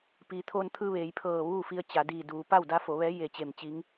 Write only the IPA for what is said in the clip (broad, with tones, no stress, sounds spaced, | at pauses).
p iː˩ t̪ʰ oː˧ n t̪ʰ ɯː˧ ʋ eː˩˧ j pʰ ɤː˧˩ ʋ uː˥˨ f i˧ ə̯ t͡ɕ a˩˧ d iː˧˩ d uː˩ p a˥˨ w d a˧˥ f o˩˧ ʋ ɛː˧˥ j e˧˩ t͡ɕ e˧˩ m t͡ɕ i˧˥ ŋ